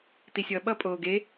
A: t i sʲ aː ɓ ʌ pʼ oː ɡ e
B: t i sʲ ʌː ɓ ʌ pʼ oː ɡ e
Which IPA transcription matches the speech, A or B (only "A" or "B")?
B